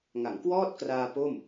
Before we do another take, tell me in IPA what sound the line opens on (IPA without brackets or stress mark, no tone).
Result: ŋ